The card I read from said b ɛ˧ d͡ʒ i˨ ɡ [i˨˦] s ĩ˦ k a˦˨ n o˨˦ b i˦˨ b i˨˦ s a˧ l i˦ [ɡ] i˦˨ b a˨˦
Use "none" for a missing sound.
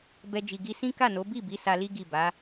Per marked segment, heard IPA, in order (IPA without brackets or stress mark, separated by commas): i˧, ɡ